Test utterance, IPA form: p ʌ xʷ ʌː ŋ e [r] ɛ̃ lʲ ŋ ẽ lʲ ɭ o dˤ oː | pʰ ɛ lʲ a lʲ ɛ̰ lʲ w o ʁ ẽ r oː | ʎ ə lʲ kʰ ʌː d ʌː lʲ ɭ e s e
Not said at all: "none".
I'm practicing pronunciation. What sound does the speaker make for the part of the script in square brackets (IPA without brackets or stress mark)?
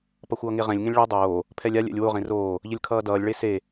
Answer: ʁ